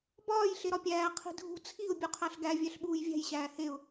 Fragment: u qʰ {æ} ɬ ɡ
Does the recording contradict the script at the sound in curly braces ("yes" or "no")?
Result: no